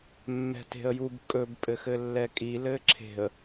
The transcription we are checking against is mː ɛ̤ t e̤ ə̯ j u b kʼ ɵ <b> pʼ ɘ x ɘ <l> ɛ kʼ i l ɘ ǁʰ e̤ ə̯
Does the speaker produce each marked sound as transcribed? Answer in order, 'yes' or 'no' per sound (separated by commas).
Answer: yes, no